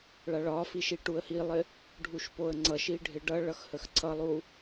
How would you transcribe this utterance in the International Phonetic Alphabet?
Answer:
ɭaɭɒfiʃi ʈuə̯hilˠɪ | ɖʱuʃpoə̯ŋ͡ǀʌʃi ɖʱɪɖʌ ɭʌxhəxǀʰʌlˠu

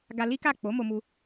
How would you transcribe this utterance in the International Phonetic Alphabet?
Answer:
ɡa˧ li˦ka˦˨ k͡po˨˦mo˧mu˧

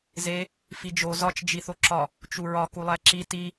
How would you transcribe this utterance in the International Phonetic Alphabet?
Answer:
ze | fid͡ʒo zɒt͡ʃ d͡ʒiθoǁɒ | t͡ʃuɹɒ kulˠæǁi ti

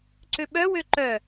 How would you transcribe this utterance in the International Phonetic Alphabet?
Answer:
ǀøɓœ wøǃœ

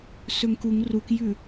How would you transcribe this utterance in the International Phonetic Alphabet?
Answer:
sɵŋkuŋ rukjʉ

